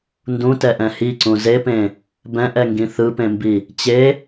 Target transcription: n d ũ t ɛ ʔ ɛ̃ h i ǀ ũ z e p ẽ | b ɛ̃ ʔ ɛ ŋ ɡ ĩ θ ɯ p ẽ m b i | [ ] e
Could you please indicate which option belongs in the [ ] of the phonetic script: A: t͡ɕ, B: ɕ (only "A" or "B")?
A